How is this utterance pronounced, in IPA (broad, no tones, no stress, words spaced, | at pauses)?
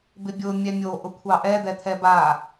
bɪbʲʊ mʲɛmʲo ʔʊkʷʰɑʔɛ d̪ɛt̪ʰɛba